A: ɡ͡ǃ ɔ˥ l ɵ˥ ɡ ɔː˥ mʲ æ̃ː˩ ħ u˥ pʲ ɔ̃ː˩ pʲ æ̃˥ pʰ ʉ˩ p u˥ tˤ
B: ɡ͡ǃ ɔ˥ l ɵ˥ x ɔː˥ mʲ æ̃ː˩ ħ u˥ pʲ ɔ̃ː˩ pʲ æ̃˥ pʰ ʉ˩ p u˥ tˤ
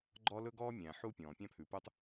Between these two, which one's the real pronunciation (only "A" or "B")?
A